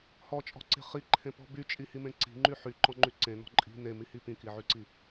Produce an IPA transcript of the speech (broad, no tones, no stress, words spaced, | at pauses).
hɔt͡ʃʼɔ̤ǀe̤ χiǃʰẽpɔ̤ byt͡ʃʼihimẽ ǀi̤ŋ͡ǃy ħyǃɔ̃ŋ͡ǃy ǀẽnɔ̤ ǃʼi̤ nemihi pĩkiʕyǀi